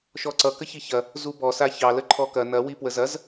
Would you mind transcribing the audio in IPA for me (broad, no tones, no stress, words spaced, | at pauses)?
ʃɔǀʌ kəçiçɐ | zubɔ saçɑ ləǃʰɔkɐ nɐ wipwəzɐz